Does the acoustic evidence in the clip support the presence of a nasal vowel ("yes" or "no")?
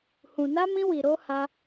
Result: yes